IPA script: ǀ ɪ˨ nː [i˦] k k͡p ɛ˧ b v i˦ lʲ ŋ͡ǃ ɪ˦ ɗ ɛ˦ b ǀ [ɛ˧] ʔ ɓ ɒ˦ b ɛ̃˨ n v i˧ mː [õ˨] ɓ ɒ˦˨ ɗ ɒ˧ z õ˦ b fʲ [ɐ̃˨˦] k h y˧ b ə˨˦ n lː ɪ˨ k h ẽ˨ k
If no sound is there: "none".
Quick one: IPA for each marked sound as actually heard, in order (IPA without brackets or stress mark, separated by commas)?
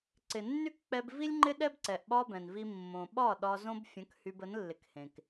y˦, ɛ˨, õ˨, ə̃˨˦